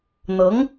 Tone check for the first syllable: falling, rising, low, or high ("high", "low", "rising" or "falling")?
rising